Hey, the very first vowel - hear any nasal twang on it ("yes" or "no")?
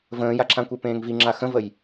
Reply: yes